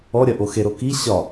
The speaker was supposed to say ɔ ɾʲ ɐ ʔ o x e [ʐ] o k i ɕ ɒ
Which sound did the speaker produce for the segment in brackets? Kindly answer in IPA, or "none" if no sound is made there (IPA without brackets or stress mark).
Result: ɾ